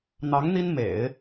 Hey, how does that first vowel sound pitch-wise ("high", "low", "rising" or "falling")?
rising